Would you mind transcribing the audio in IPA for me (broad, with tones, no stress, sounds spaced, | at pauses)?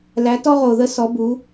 l æ˨˥ t ɔ˥ ʁ o˨ ð ə˥ s ɔ˨˥ b u˨˥